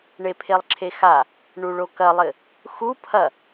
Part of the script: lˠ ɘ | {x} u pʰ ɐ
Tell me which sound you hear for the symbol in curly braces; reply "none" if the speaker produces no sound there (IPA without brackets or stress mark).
x